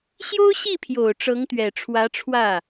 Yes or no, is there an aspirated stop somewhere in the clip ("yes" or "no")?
yes